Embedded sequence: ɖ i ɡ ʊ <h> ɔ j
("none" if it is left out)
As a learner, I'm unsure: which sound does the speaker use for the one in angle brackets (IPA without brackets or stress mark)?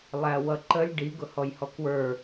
h